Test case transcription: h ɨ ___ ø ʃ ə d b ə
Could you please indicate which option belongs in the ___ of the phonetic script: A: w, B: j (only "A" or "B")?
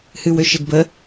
A